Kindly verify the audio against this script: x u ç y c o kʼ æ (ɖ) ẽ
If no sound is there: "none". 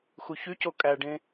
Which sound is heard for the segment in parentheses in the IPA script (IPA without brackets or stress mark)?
ɖ